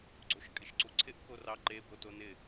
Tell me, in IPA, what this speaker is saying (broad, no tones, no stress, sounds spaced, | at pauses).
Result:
ɡ͡ǀ o ʃ kʼ ɪ ʃ ǀ u ǀʰ ɪ ʔ k o r ɑ ǃ e b o t o n ɪ